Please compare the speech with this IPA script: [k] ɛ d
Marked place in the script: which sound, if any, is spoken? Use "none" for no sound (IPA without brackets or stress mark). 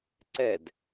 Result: ǀ